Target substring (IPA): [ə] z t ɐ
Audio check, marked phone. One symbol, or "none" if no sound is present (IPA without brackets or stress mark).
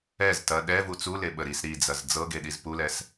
ɛ